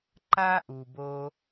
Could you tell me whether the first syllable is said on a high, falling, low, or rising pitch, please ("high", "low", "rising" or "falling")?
high